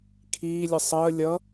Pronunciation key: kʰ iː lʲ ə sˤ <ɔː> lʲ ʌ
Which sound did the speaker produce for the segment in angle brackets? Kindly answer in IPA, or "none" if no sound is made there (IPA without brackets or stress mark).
əː